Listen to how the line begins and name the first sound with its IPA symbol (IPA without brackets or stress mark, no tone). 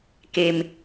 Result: k